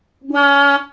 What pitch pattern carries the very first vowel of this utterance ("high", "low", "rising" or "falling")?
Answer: high